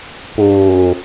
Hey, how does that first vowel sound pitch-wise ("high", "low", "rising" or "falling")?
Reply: low